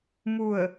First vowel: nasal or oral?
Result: oral